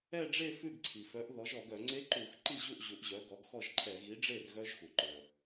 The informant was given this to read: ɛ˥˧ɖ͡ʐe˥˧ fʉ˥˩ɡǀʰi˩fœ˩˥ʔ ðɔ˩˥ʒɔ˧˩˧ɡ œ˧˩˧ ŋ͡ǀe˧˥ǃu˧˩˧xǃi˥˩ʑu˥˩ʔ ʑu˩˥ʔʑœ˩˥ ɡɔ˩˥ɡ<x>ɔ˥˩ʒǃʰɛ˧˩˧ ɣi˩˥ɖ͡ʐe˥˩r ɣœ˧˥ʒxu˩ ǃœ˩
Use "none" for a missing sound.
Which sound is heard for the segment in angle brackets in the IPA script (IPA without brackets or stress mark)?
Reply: x